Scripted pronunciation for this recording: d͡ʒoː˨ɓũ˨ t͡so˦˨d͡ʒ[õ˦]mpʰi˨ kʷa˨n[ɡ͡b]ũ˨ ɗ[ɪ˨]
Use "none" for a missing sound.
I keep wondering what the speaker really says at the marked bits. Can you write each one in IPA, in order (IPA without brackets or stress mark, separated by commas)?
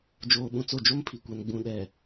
o˦, ɡ͡b, ɛ˨